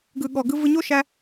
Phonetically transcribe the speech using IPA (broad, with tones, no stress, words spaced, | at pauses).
ɡɯ˨ɠɔ˨ɡɯ˧ vɯ˧ ɲo˦ʃæ˧